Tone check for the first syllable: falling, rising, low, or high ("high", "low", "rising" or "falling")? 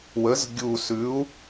rising